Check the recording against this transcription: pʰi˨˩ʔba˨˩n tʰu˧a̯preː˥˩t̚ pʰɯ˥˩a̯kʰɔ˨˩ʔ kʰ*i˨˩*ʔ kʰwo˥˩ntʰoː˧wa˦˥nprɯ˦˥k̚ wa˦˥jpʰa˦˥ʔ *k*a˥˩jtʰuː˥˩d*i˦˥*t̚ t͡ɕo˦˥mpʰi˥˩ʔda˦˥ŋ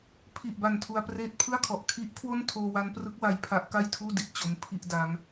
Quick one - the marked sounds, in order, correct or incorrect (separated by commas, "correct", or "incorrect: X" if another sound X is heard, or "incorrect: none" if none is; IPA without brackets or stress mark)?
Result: incorrect: i˦˥, correct, incorrect: i˨˩